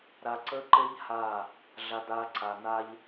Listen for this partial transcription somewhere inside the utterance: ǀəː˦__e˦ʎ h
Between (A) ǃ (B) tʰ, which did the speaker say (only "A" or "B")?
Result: A